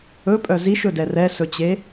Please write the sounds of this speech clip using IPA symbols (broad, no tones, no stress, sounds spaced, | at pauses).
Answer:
ɵ pʼ œ z i ʃ ɵ d ɛ r ɛ s ɵ t͡ɕ e